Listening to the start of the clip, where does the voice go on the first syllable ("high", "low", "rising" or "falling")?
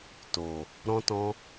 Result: low